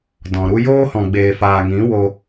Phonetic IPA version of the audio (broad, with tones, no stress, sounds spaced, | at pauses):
d ɔ̃˨ ɾ u˦ j oː˦ h ɔ̃˨ ɡ͡b eː˨ f aː˨ ŋ ĩ˨˦ w o˧